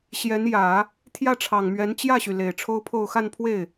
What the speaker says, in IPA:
ɕ j ɛ˧˥ n j ä˨˩˦ | t̪ʰ j ä˥˩ ʈ͡ʂʰ ɑ˨˩ ŋ m ɥ ɛ˧˥ n t͡ɕ j ä˥˩ ɕ y˩ l e˨˩ ɪ̯ ʈ͡ʂʰ o˥ ʊ̯ pʰ o˥˧ ʊ̯ x a˥˧ n pʰ w e˥˩ ɪ̯

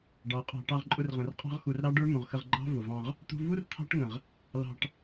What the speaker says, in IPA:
ɖ ɑ˨˦ qʼ ɑ̤˧ ʈ ɑ˧ ʁ ǃʼ ʊ˧ r ʁ ə̃˨ r qʼ ɑ̤˦ ʁ x u˧ r ɾ ɑ˦ ɖ ə˞˦ m ũ˨ ʁ x ə˧ ʁ ɡ͡ǃ ɑ̤˦ v ʊ˨ v ɑ̃˧ ʁ | t̪ ṳ˧ v u˦ r t̪ʰ ɑ̤˦ ʈ ŋ ə̃˨ ʁ | l ɑ̤˧ ʈ

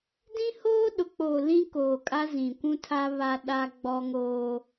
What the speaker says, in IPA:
d ĩ˦ h oː˦ ɗ ʊ˨ k͡p oː˨ l ĩ˦ k oː˨ kʼ a˦ z ĩ˨ kʷ ũ˦ tʰ a˦ β a˦ ɗ a˦ ɡ͡b ɔ˦ ŋ oː˦

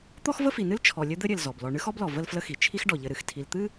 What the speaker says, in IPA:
t̪ ɔ˥ x v ə˥ f i˨ n ɨ˥ l t͡ʃʰ ɔ˨ lʲ ɘ˦ d̪ ɘ˥ ɾʲ ɘ˨ l z ɔ˩ b l ɔ˨ ɳ ɨ˥ x ɔ˥ b l ɔ˩ v ə˥ l f l ə˦ x i˩ t͡ʃʰ i˦ x ɖ ɔ˩ ʎ ɘ˨ ɾ ɨ˩ x tʰ i˨ l t̪ ɨ˥

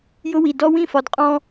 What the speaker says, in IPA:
j ʊ˦ w i˨ d ɔ˦ w ĩ˦˨ f ɒ˨ d qʼ ɔ̃˦

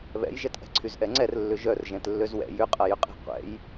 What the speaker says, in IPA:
β ɛ̰ j ʒ ɛ t ʔ ɛ̤ ǀʰ y z ʔ ɛ ŋ͡ǀ ɛ r lː ʏ ʒ œ r ʒ ɛ̃ t lː ø z w ɛ̰ j ʏ qʼ ɐ j ʏ qʼ ɛ̤ qʷ ɛ̰ j

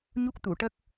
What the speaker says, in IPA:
ɲ u˦˥ k̚ t̪ u˨˩˨ ʈ ə˦˥ k̚

